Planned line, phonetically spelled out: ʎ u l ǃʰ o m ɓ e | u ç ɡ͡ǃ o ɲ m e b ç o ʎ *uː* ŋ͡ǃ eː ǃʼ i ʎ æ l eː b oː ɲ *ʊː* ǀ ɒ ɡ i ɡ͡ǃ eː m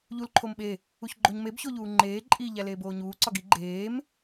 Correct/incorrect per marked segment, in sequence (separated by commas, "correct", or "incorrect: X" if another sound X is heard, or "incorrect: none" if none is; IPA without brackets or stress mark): correct, incorrect: uː